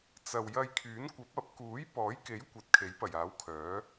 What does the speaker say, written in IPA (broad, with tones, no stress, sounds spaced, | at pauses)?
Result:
t͡s ɐ˨ w j ɐ˧ j kʰ yː˨˥ n kʷ ɐ˨˥ p̚ ɐ˨˥ p̚ k uː˨˥ j p ɔː˨˥ j k e˨˥ j kʷ ɐ˨˥ t̚ kʰ e˨˥ j p ɐ˨˩ j aː˨˥ w kʰ œː˨˥